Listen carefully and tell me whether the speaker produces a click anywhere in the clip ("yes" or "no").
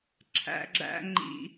yes